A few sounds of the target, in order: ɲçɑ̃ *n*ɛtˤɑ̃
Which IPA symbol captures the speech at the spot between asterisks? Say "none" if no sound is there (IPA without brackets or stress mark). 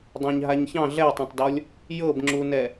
ɮ